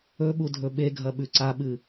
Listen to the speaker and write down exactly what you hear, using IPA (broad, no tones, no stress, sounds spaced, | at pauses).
ɵ ɓ u dʱ ɵ ɓ e ɡʱ ɐ ɓ ʉ ǀ a ɓ ɨ